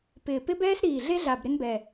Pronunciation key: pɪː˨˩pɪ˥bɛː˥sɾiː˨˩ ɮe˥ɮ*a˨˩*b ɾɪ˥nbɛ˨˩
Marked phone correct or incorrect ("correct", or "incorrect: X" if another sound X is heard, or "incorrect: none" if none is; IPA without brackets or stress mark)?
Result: correct